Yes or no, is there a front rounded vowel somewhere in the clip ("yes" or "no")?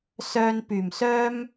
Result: yes